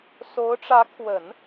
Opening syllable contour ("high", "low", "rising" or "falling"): rising